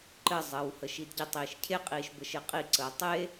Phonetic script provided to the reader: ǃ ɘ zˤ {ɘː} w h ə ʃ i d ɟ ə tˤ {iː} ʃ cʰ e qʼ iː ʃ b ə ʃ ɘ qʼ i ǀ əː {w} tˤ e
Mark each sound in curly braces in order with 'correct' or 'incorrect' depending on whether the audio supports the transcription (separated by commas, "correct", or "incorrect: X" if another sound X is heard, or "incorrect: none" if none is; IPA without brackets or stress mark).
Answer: correct, correct, incorrect: none